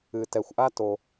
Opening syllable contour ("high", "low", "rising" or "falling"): low